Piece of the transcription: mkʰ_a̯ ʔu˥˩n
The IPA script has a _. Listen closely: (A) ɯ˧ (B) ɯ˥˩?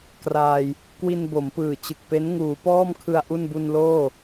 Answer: A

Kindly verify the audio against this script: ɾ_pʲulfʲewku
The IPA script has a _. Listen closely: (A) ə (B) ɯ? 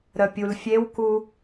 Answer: A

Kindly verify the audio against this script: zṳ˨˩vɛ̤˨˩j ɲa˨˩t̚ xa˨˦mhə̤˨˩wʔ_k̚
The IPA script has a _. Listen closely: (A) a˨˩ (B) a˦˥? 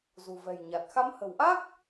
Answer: B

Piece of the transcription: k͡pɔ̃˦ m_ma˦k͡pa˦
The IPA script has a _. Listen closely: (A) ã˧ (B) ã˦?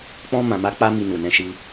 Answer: A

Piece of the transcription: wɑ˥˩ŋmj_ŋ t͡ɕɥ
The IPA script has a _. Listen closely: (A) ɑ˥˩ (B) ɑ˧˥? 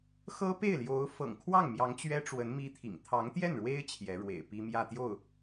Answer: B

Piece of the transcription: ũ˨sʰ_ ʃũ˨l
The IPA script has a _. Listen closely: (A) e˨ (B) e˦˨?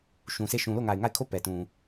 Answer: B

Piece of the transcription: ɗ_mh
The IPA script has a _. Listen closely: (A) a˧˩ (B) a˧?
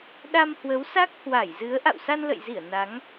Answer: B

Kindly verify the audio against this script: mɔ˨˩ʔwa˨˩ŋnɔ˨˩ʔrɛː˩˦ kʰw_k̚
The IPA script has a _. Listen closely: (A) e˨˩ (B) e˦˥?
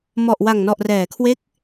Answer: B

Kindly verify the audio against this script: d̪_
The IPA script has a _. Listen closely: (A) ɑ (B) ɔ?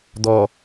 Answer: B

